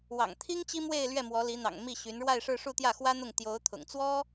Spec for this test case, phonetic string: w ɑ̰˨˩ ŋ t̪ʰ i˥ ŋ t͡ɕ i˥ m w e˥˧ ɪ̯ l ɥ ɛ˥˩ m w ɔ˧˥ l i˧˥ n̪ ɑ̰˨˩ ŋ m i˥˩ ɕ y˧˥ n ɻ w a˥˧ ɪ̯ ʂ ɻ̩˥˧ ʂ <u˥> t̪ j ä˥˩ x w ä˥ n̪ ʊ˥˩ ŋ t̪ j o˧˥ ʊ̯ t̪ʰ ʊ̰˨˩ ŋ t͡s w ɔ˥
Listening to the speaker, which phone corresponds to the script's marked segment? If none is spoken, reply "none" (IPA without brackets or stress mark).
u˥˧